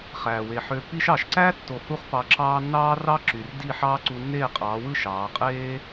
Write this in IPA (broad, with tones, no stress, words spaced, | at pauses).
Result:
χæː˨we˨ħø˧ pi˧ʃɑ˨ʃǀæ˦tːo˨ hu˦χpɑ˧ǁɑː˦ nːɑː˦rɑ˦ ǁy˨rdi˦˨ ħɑː˦ǀu˧nːeː˦˨qʼɑː˨˦ wɯ˦˨ ʃɑː˨˦ qʼeː˦